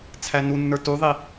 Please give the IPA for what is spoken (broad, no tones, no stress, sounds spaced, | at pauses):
t͡sʰ æ n u nː ə˞ t u ðˤ i